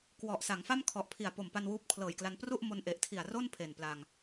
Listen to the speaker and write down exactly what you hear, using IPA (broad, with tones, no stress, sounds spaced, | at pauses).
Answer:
k w ɔ˨˩ ʔ s a˩˦ ŋ f a˥˩ m kʰ ɔ˨˩ ʔ pʰ i˨˩ a̯ p o˨˩ m p a˧ n w uː˦˥ p̚ kʰ l ɤː˨˩ j k l a˧ n p r u˥˩ ʔ m o˧ n ʔ e˨˩ ʔ tʰ i˨˩ a̯ r o˥˩ n pʰ e˨˩ n p l a˧ ŋ